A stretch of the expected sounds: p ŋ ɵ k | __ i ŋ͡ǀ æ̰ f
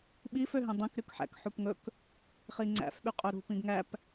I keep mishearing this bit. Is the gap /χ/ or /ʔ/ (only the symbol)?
χ